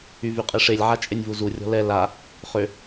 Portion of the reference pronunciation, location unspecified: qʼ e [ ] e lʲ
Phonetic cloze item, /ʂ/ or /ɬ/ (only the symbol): ʂ